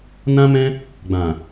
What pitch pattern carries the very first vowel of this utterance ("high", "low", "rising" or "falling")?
high